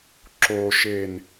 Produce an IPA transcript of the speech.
ǁ o ʃ e n

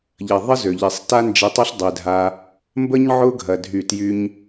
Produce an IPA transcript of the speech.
ʎ ɐ˨ ðˤ ə˦ z ø˨ ʎ i˨ sˤ t a˦ n d͡ʒ e˧ tˤ ɐ˦ ɬ dˤ e˧ dʱ a˦ | m b ə˦ ɲ ʕ ʊ˦ ɡʱ ɐ˧ dʱ y˦˨ t j y˦ ɲ

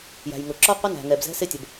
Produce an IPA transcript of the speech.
j æ̤˨ j ŋ ʊ˨ ǁ ɔ˦ qʷ ɪ˦ n æ̤˨ ŋ ɛ˨ b z ɛ̤˦ s ɪ˦ tʲ ə˨ b

